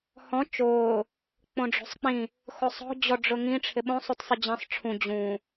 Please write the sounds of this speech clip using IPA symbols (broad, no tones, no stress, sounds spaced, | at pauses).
h ɔ̃ t͡ʃ ʊː | k͡p õ ɖ͡ʐ o̤ sˤ k͡p ĩ | x o sˤ ɔ̤ d͡ʑ ɔ ɖ͡ʐ ʊ ŋ ĩ ʈ͡ʂʰ ɪ ɓ õ sˤ u t sˤ ɪ d͡ʑ ĩ sˤ ʈ͡ʂʰ ũ d͡ʑ ũ